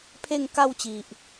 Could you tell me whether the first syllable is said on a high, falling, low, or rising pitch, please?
falling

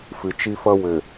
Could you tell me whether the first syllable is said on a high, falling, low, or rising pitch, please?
low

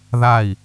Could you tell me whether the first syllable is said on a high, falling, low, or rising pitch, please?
falling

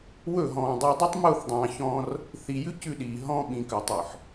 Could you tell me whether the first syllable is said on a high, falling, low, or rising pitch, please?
falling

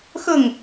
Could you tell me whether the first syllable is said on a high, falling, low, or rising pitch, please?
falling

